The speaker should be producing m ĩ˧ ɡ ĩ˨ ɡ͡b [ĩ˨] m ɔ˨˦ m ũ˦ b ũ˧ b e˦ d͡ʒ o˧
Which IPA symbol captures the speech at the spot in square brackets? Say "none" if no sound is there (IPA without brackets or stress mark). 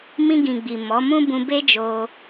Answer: i˨